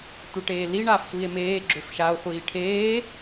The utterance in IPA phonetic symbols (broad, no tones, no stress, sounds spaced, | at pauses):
tʷ e ʈ eː l i ɳ aː f sʷ iː e̯ m eː ɡ͡ǁ ø f ʃ a o̯ χʷ iː ʈʰ eː